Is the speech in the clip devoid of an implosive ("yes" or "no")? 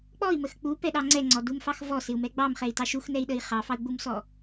no